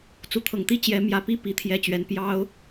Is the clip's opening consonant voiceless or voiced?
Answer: voiceless